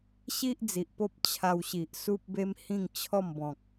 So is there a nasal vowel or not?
yes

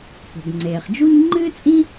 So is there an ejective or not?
yes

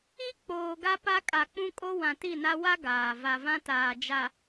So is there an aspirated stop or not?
no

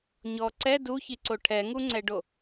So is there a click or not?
yes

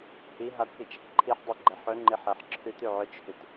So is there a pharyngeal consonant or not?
yes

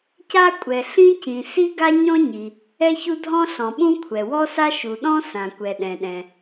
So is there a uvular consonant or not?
no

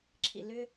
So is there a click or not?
yes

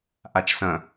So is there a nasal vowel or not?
yes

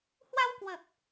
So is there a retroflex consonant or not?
no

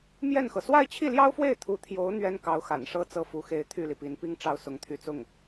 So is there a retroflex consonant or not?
yes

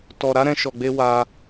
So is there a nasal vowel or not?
yes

